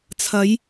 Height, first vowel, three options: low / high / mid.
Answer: low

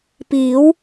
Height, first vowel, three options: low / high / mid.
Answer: high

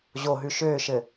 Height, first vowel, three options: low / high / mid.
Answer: mid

